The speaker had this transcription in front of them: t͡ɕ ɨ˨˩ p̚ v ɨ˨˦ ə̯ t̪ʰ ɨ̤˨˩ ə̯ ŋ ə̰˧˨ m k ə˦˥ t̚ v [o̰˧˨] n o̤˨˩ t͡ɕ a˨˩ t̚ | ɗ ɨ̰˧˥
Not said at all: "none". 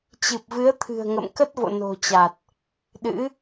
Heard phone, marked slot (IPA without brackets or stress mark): o̰˧˨